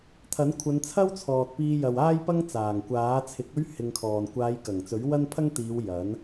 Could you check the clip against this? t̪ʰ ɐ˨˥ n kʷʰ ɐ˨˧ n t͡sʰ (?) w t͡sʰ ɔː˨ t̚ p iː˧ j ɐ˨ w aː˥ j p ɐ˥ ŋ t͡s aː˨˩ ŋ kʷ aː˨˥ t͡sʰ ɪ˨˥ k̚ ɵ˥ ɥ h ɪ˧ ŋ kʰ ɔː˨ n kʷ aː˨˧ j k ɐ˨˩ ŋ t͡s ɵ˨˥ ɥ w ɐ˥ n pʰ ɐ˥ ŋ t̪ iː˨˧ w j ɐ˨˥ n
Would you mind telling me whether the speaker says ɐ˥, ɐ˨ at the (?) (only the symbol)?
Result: ɐ˥